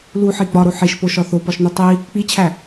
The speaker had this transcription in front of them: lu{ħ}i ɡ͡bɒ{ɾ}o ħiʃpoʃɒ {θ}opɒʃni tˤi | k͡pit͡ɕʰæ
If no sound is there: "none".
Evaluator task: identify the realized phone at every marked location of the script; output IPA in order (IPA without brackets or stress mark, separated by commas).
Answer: ħ, ɾ, θ